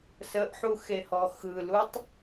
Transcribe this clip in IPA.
s ə ʔ ħ u x e h ɔ x ɯ l u tˤ

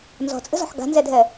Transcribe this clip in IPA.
n z ɔ̤ t͡sʼ ə̤ z ɔ̤ ħ ɡ a̤ n z ɛ dʱ ɛ

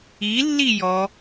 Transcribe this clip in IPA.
i lː i j ɔ

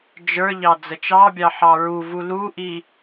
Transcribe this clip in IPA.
d͡ʒ ə˞ ʎ ɑ d͡z ə t͡ʃ ɑ bʲ ɑ ħ ɑ ɹ u v u l u ʔ i

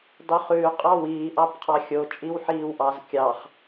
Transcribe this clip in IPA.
dˤ y χ ʉː qʼ ɑ w iː ʔ ɑ b qʰ ɑ xʲ o t͡ʃʼ i w ħ iː w ʔ ɑ z kʲ ɑ χ

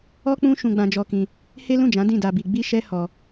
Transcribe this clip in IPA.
ɔ˦ k͡p ũ˦ ʃ ũ˧ ɡ͡b ã˧ d͡ʒ ɔ˧ k ĩ˧ | h e˦ l ũ˦˨ d͡ʒ ã˨˦ d ĩ˦˨ d a˧ b i˧ ɡ͡b i˦ ʃ ɛ˦ h ɔ˧

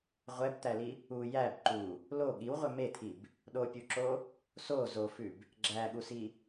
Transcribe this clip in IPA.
ʁʷ ɛ b t̪ æ l i | u j æ b ǃ u | l o ɠ i w ʁʷ ɛ m e t̪ʰ i b | ɗ o pʲ u ǁ o | s o z o f ʉ b | ɡ͡ǁ æ ɠ u s i

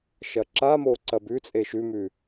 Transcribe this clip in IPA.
ʃ ɐ ǁ a m o ǀ ɐ b ʉ t͡sʼ e ʃ ʉ m ʉ

